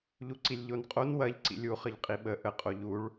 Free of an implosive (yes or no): no